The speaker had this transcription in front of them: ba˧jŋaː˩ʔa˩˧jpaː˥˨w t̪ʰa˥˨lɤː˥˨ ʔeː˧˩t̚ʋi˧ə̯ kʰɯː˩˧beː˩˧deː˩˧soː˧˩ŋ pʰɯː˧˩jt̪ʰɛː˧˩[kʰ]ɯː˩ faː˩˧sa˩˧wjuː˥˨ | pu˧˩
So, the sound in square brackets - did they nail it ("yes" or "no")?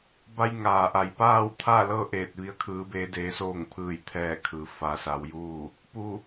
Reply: yes